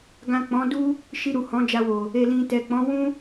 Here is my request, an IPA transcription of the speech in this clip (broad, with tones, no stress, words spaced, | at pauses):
ɡã˨ k͡pɔ̃˨˦du˦ | ʃi˧ɾu˨ hɔ̃˨˦d͡ʒa˧wo˨ | e˨lĩ˨tɛ˨k͡pɔ̃˨˦ wũ˦